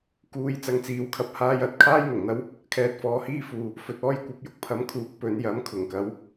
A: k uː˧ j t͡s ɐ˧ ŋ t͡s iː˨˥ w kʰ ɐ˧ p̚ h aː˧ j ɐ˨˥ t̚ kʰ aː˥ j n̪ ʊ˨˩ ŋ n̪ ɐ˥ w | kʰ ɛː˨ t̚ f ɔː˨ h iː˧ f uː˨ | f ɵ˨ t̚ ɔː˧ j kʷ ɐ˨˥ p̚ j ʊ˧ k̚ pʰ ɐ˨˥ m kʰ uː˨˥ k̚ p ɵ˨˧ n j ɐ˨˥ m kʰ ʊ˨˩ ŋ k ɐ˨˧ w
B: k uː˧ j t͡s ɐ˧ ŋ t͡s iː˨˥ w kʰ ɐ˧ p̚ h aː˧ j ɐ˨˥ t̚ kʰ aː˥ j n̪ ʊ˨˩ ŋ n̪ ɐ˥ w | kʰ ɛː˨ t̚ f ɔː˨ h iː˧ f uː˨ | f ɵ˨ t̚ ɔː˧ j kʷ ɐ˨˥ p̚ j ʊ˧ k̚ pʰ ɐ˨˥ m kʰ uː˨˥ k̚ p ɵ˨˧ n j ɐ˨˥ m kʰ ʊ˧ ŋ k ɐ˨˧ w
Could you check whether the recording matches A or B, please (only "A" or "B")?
A